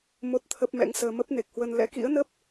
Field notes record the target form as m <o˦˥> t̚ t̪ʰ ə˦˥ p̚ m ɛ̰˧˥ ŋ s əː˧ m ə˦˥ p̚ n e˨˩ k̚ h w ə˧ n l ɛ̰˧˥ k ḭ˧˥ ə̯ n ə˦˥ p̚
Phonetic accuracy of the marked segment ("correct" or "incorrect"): correct